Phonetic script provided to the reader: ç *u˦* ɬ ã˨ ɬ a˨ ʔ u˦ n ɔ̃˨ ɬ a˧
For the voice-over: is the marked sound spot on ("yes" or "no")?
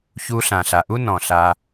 no